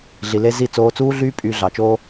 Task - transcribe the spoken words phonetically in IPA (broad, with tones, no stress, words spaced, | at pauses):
ɮi˨le˧ zi˦˨ t͡soː˧t͡suː˦ɮyː˦ pʼyː˧ɮɑ˨t͡ʃoː˦